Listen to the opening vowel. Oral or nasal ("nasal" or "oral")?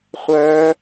oral